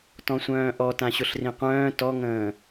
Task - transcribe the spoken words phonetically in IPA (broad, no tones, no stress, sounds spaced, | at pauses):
t ɔ̃ sʷ œ̃ː ʔ ɔ t ã ɕ ʊ ɬ r ĩ qʷ œ̃ː t ɔ ŋ ə̃ː